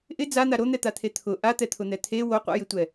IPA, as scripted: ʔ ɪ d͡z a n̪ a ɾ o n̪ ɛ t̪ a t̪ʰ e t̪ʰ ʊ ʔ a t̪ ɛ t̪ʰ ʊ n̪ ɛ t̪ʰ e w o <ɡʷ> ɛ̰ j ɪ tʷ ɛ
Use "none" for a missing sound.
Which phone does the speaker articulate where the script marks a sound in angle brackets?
qʷ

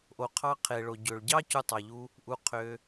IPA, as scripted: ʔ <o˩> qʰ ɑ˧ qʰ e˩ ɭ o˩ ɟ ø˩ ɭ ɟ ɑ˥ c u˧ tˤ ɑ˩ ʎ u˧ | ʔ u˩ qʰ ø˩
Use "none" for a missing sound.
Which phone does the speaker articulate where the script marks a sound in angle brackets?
o˩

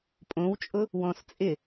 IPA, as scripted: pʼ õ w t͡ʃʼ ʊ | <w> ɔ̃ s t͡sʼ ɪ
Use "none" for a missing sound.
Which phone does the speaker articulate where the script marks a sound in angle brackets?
w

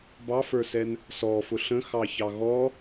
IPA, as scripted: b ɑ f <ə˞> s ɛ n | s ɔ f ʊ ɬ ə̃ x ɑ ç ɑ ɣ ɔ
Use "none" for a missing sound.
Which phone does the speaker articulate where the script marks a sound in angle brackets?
ə˞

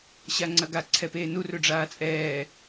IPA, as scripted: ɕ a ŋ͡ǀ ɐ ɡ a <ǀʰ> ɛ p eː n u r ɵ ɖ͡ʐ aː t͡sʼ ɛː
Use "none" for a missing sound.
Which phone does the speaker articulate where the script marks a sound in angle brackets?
ǀʰ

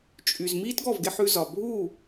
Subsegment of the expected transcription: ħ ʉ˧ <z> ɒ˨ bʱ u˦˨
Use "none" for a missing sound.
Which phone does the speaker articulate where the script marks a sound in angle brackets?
z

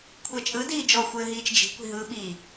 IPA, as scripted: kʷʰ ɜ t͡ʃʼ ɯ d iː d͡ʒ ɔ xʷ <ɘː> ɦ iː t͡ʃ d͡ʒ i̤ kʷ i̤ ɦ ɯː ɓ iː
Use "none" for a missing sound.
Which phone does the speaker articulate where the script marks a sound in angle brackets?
ɘː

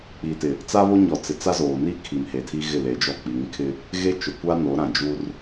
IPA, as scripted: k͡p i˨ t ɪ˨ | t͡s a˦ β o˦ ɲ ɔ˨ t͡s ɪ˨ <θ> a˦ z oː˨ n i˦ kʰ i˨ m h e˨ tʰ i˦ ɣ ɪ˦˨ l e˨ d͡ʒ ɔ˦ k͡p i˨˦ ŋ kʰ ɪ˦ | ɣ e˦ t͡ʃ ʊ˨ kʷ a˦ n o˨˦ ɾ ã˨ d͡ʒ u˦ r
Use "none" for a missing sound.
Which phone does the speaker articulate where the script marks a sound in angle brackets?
t͡s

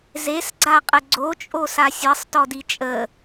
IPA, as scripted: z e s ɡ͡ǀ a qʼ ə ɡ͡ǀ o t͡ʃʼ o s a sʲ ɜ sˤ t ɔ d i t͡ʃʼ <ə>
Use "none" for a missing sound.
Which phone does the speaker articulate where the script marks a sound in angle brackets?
ə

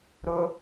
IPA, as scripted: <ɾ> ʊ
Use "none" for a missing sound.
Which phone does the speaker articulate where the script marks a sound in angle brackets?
ɾ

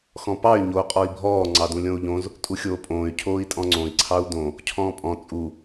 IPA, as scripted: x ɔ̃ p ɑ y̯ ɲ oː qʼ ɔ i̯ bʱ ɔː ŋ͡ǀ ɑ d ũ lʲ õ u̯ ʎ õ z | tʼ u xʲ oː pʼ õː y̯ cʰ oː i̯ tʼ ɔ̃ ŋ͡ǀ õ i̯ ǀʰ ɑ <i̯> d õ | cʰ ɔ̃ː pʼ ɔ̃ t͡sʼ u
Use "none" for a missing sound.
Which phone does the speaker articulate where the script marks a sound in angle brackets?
u̯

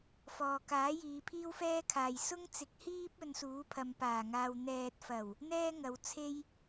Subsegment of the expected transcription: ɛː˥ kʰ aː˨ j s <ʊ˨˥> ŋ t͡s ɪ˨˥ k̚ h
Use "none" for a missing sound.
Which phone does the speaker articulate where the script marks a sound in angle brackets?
ʊ˥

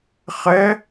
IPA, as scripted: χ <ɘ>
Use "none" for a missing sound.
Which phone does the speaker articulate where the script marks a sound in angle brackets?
ɛ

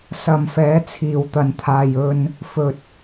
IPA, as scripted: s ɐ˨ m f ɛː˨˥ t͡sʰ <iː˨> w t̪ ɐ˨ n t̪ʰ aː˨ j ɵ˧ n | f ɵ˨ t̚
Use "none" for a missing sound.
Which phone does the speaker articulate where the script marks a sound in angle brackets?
iː˨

